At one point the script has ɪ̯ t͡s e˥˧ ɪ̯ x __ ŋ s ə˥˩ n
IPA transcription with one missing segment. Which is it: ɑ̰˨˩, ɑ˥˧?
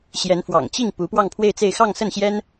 ɑ˥˧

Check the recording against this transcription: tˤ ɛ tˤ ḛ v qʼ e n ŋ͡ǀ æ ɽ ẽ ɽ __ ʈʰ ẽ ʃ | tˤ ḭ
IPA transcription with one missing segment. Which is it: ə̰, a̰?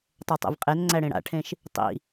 a̰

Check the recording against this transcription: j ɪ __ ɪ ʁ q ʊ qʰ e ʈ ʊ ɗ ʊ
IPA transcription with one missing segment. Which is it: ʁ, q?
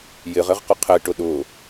ʁ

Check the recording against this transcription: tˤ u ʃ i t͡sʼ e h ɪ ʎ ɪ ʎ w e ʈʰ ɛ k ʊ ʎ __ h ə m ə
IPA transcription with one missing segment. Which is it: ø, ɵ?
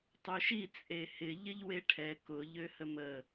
ø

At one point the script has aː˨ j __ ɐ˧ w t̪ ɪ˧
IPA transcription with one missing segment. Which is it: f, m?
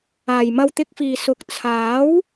m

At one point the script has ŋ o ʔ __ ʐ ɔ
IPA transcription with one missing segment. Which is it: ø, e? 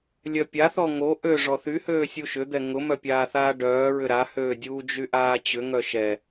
ø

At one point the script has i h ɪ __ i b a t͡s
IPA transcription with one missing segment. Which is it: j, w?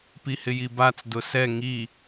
j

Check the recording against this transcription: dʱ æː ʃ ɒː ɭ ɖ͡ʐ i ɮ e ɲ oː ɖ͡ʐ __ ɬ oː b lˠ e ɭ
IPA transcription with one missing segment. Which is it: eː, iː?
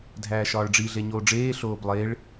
eː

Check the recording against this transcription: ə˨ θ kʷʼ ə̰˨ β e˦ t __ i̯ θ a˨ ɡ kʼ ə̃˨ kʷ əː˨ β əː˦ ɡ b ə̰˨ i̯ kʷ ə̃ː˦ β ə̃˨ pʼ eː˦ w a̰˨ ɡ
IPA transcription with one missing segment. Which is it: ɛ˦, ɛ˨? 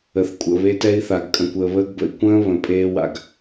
ɛ˦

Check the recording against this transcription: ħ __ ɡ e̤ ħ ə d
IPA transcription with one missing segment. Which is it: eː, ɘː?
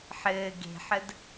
ɘː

